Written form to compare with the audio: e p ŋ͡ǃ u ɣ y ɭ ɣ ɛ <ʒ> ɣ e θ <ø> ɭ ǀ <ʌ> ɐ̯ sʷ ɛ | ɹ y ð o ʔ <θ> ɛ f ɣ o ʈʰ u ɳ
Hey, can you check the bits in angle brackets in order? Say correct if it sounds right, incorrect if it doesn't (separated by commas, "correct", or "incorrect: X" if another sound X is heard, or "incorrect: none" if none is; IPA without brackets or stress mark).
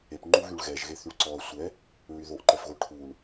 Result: correct, incorrect: y, incorrect: ɔ, incorrect: ǃ